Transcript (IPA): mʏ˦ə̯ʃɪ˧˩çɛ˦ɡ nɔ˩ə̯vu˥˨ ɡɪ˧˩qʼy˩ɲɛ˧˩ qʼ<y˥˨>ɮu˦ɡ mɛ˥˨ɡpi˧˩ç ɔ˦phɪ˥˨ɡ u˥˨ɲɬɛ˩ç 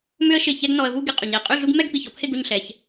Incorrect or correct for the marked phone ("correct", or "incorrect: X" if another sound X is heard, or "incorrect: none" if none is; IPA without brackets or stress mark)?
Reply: correct